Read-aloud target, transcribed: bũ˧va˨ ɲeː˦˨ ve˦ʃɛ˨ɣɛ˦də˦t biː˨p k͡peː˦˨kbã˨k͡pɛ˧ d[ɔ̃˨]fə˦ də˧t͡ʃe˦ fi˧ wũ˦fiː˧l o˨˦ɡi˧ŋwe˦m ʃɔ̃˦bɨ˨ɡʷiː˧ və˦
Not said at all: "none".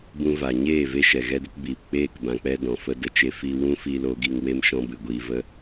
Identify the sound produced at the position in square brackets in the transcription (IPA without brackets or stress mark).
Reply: ɔ̃˨